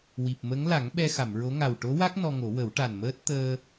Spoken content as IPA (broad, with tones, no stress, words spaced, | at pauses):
wi˨˩p̚mə˧˥ŋla˨˩˦ŋ ɓɛ˧ xa˨˩˨mɹo˧˥ ŋa˨˩wʈo˧˥wa˦˥k̚ nɔ˧ŋo˨˩˦wə˨˩˦w ʈa˨˩nməː˦˥t̚ t̪əː˧